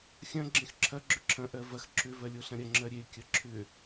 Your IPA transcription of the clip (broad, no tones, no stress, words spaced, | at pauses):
xʲɐ̃ ɡ͡ǁẽxǁʰɐ ɡ͡ǁʏǁʰɐ̃ ʔɜvɐx ǁʏ vɜlʲoɬɐ̃ɾʲɐ ŋ͡ǁɜɾʲe kʲɐǁʰʏ